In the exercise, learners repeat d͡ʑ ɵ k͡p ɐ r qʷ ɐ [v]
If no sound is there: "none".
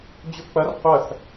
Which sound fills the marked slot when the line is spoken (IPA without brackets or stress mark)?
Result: θ